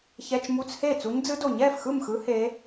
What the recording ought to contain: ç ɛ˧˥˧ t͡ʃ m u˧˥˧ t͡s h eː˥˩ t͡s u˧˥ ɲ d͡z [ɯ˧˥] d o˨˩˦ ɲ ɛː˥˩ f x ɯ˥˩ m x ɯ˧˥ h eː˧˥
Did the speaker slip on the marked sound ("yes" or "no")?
no